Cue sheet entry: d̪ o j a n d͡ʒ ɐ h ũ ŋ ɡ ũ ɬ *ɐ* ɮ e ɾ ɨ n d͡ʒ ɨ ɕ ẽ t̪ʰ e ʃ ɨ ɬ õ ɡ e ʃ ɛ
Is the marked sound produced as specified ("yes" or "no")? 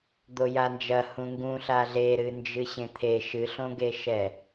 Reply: no